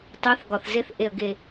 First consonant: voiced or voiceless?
voiceless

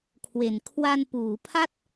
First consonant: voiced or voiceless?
voiceless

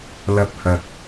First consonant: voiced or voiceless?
voiced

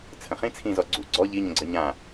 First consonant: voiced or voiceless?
voiceless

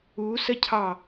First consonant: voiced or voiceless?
voiceless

